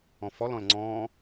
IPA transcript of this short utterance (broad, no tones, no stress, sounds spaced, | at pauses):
ɔ̃ f ɔ l ɔ̃ l ŋ͡ǀ ɔ̃ː